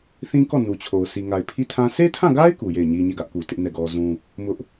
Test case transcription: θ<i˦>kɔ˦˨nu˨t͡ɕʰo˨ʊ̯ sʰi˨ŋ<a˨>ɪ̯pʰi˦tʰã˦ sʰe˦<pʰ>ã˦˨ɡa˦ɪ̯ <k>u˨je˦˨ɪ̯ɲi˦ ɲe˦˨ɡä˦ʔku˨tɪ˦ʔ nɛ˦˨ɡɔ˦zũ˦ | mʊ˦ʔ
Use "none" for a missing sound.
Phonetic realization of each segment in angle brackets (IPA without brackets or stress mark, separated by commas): ĩ˦, a˨, tʰ, k